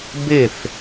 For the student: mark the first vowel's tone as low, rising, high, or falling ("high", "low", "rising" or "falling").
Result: falling